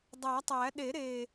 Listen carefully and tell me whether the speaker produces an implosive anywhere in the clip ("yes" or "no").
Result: yes